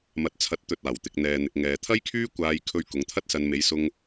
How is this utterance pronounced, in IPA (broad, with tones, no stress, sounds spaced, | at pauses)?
m ɐ˨ t̚ t͡sʰ ɐ˨˥ t̚ t̪ ɵ˨ t̚ aː˨˩ w t̪ ɪ˧ k̚ n̪ ɛː˧ n̪ ɪ˧ k̚ ŋ ɛː˨ t̪ʰ ɐ˥ j kʰ yː˥ kʷ aː˧ j kʰ ɵ˧ ɥ k ʊ˨˧ ŋ t̪ʰ ɐ˥ t̚ s ɐ˧ n m e˨˧ j s ʊ˧ ŋ